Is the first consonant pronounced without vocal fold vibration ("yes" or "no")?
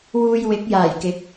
no